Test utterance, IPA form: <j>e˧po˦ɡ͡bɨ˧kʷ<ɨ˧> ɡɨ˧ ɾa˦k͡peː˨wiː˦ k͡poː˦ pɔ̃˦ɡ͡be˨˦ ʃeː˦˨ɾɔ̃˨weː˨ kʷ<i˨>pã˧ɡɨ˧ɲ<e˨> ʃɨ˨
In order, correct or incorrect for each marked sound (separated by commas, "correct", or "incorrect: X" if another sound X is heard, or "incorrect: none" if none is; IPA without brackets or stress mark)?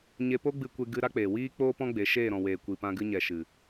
incorrect: ɲ, incorrect: e˧, correct, incorrect: ɛ˨